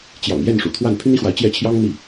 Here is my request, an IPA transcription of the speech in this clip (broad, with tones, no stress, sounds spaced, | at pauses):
t͡ɕ j ɑ̰˨˩ ŋ j ɛ˥˩ n ʂ ṵ˨˩ t̪ʰ w a˥˩ n pʰ y˥ n i˥ x w a˧˥ ɪ̯ t͡ɕ j ɛ˥˩ t͡ɕʰ j ɑ˥ ŋ n̪ i˥˩